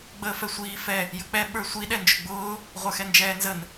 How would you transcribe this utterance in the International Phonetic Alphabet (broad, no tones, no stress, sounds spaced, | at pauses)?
ɡ͡b əː f ɛ sʷ iː f ɛ | j ə k͡p ɛ ɓ ə˞ sʷ i ɗ ɛ n d͡ʒ ʊ ɡ͡b ʊː | ʁʷ ə˞ x ɛ n d͡ʒ ɛː n z ə n